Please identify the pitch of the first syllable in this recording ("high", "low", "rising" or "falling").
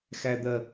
low